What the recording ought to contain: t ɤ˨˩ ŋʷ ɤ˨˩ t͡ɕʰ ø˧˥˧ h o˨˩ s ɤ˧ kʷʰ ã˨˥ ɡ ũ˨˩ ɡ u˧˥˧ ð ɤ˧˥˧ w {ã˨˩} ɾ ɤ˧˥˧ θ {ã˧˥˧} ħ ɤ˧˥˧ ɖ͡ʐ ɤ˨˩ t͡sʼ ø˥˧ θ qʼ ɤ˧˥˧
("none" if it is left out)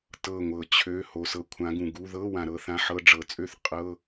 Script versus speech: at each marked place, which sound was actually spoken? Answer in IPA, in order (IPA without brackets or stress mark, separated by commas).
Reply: ã˨˩, ã˧˥˧